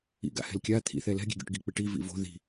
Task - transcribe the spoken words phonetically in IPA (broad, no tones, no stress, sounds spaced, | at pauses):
ḭ ɡ a̰ h ɛ̤ l kʲ a t̪ʰ ḭ θ ɛ l ɛ̤ ɡʲ ɛ̤ ɡʲ o̰ ʈ ɡ i k͡p ɪ ʈ i v ḭ v o̤ ð i̤